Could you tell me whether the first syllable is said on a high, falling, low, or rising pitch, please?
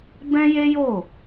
high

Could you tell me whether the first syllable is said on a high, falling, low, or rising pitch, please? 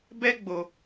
high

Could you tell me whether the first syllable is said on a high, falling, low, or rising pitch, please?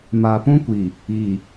low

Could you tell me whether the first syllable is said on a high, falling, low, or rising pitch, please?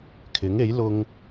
rising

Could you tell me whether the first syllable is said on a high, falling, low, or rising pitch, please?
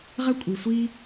high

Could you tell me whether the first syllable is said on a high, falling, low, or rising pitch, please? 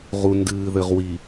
low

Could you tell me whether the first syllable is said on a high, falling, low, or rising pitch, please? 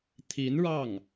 rising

